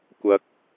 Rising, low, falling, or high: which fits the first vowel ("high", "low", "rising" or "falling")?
rising